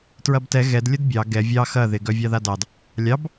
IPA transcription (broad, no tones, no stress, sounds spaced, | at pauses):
t ɹ ɐ b t ɛ ɣ ɛ d lʲ ə d bʲ ɑ ɡ ɛ vʲ ɑ x ɐ ð ɪ ɡ œ vʲ ɑ ð a d ɑ d | lʲ ɑ b